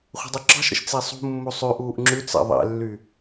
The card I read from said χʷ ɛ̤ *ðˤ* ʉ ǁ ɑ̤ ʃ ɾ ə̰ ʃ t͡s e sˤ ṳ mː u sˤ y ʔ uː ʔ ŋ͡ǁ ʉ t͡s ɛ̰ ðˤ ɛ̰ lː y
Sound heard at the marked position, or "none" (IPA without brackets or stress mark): dˤ